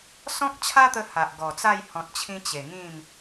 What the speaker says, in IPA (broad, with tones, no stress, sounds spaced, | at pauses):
s ɔ̃˦ k̚ t͡ɕʰ a˦ t̪ ə˧ h a˨ ʔ ɡ ɔ˨˩ t͡s a˥˧ j h ɔ̃˨ t̚ t͡ɕʰ ĩ˧ t͡ɕ e˨˩ ŋ ĩ˥˧ m